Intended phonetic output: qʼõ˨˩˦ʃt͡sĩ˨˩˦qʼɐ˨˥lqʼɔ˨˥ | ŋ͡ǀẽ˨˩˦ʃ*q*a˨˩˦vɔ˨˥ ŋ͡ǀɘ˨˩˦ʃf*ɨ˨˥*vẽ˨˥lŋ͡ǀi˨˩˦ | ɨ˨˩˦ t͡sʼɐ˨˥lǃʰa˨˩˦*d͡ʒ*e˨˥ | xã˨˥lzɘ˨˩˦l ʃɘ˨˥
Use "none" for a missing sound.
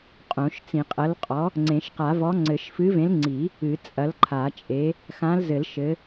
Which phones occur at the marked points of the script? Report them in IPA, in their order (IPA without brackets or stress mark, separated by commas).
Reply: q, ɨ˨˥, t͡ʃʼ